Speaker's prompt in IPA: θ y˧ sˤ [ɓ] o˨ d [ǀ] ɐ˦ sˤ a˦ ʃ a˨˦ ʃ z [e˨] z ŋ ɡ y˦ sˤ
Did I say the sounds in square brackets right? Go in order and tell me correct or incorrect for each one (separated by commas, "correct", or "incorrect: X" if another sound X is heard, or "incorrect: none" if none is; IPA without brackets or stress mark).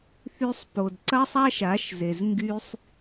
incorrect: p, correct, correct